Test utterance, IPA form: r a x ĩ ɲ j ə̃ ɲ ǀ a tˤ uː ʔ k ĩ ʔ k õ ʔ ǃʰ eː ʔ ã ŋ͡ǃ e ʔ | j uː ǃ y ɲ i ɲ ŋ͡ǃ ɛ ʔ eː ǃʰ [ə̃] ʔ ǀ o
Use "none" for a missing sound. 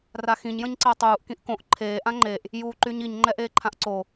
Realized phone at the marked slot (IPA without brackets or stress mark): ã